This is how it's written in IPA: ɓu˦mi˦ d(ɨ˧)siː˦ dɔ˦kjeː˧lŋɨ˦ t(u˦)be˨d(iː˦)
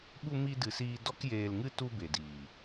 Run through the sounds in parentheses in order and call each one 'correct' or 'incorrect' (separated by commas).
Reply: correct, correct, incorrect